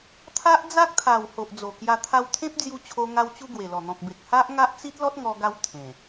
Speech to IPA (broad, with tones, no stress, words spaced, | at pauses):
t̪ʰa˦ʔd͡za˦k̚t̪ʰa˨˩w ho˨ʔd͡zo˨˩kja˧ t̪ʰa˧wt̪ʰẽ˦p̚ d͡zju˧t͡ɕʰo˧ ŋa˧wt͡ɕu˧ ɡwe˨˩lɔ˨˩ n̪ɔ̃˨k̚be˨k̚ ha˦ʔ ŋa˦ʔt͡si˦t̚lɔ˦t̚ ŋɔ˧ɡa˧w t̪ʰẽ˨˩